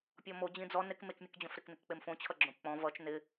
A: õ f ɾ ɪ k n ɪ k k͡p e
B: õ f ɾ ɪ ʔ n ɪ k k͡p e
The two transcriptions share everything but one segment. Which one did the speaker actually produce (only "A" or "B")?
A